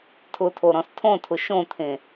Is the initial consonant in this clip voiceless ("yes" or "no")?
yes